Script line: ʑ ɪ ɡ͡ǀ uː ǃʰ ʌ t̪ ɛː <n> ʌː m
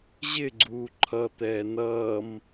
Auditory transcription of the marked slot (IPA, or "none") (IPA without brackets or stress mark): n